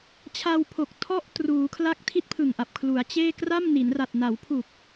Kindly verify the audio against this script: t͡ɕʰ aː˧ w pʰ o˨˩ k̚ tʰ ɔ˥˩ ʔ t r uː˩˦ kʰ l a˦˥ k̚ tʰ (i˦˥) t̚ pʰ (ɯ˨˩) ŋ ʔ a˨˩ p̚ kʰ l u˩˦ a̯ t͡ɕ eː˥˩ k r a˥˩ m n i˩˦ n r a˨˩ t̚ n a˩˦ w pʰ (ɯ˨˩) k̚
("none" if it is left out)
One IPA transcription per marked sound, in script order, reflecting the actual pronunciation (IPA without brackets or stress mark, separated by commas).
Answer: i˥˩, ɯ˨˩, u˨˩